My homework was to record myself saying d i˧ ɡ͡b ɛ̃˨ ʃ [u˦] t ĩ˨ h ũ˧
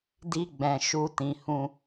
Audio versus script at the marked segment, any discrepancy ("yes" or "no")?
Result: yes